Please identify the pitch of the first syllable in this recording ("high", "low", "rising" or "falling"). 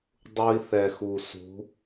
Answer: high